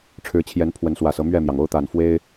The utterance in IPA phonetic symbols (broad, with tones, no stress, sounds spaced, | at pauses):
ʈ͡ʂʰ ɻ̩˨˦ t͡ɕʰ j ɛ˨˦ n pʰ w ə˨˦ n s w ä˨˩ s ɤ˦ m ɥ ɛ˥˨ m j ɑ˩ ŋ o˦ ʊ̯ t̪ a˨˩ n f w e˦ ɪ̯